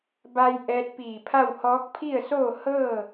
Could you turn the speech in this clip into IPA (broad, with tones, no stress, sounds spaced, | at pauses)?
b a˧ j ʔ ɛː˧ t̚ p iː˧˩ pʰ a˥˨ w h ɔː˧˥ k̚ pʰ i˥˨ ə̯ s oː˥˨ h ɤː˥˨